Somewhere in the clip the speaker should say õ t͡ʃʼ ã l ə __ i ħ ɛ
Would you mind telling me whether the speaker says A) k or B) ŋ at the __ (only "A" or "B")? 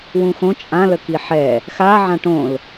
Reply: A